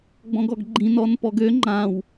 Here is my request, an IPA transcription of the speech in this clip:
ɡ͡bɔ̃ɡɔɡɡ͡ǃĩ nɔnpɔɡø ŋ͡ǃãw

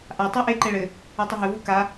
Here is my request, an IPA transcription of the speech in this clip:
ʔa tˤeʔe ǃɛɭɘ | ɛtˤɘɦɘ vuka

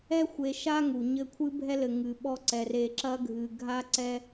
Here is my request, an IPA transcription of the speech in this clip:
ɛ˦xʷe˨ʃa˦ ŋu˨ɲɘ˦˨ kʷʰɨ˦bʱɛ˦lɘ˨ ŋɨ˨ɓɔ˦ǀɛ˨ re˨ǁɐ˦ɡʱɨ˨ ɡʱa˦ǀɛ˦

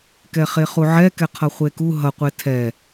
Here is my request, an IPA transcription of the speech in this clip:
kɛχeχuʕɛ kɛqʰʌχʷeku ɦʌqʷe tʰɛ

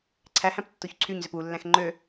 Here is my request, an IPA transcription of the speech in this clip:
ǀʰæhæ̃p tːoçǀʰyɲzøp ulːæ̃x ŋ͡ǃø

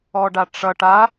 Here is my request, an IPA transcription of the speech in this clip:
ɔɖaʈ͡ʂʌʈ a

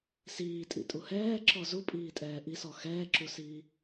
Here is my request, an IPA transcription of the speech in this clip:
siːtʼḭtʼu hɛːǁɔ zupʼiːtʼɛː ʔisɔ xɛːǁusiː

